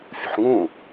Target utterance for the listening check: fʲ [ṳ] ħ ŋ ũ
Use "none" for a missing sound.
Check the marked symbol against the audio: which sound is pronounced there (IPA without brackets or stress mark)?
ṳ